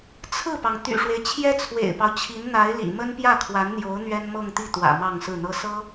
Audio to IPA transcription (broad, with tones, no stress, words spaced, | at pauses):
t͡sʰɹ̩˥˩pɑ˩ŋ t̪y̰˨˩ʂwe˦ɪ̯ t͡ɕʰjɛ˥t͡sʰwḛ˨˩ɪ̯pɑ˦ʊ̯t͡ɕʰi˧˥n n̪a˧˥ɪ̯ lḭ˨˩ mə˥npjä˥˩kʰwa˧˥nn̪jo˧˥ʊ̯ n̪ɥɛ˥nmɤ˥˧ŋt̪i˥˩ t̪wä̰˨˩ mɑ˥˧ŋsɹ̩˥˩n̪ɤ˥ sɤ˥